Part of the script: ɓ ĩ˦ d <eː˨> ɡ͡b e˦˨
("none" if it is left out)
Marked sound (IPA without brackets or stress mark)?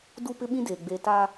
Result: eː˨